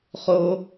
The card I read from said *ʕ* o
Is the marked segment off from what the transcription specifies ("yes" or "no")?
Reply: yes